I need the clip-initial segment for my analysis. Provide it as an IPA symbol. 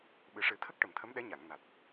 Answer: ɓ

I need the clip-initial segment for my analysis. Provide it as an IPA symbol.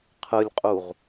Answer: qʰ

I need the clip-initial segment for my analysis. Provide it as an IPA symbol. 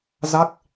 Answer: z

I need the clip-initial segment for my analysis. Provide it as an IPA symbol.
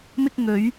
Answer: m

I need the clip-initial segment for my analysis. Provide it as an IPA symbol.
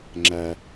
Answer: ŋ͡ǁ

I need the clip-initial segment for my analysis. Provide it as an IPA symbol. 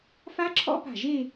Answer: f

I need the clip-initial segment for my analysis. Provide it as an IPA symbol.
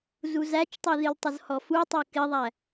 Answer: z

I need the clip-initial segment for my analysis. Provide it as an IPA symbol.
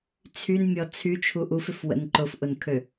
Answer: t͡sʰ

